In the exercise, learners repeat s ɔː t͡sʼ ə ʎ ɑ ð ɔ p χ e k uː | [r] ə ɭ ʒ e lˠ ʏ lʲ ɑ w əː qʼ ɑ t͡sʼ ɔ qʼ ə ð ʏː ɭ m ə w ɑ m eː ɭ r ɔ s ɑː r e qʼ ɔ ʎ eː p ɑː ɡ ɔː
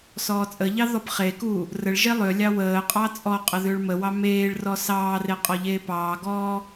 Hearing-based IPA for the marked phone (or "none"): r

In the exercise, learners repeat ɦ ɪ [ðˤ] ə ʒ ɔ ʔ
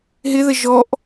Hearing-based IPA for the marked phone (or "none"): ð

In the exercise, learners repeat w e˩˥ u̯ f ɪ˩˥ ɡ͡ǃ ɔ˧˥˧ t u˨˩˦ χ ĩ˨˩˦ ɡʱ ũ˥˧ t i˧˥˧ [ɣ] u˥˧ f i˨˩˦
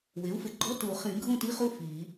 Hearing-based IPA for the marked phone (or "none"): χ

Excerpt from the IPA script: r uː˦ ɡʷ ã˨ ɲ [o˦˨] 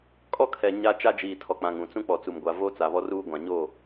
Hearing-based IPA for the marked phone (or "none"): o˦˨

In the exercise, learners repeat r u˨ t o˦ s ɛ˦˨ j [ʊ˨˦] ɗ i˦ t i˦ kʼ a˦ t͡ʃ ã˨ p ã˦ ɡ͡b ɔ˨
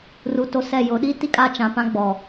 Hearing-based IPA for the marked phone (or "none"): ʊ˨˦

